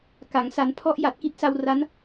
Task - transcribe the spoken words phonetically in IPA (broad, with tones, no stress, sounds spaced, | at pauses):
k a˩˦ ŋ s a˩˦ n pʰ ɔ˦˥ ʔ j a˨˩ t̚ k i˦˥ t̚ s a˧ w r a˦˥ n